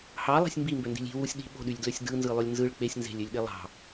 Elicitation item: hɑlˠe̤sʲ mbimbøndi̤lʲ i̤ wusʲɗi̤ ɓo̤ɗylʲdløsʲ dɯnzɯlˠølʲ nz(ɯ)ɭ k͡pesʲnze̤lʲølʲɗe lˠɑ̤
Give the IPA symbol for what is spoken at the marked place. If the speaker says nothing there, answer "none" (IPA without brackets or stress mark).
ɯ